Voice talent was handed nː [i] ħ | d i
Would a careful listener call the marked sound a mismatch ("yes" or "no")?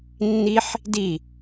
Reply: no